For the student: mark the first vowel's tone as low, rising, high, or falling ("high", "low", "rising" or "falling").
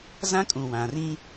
high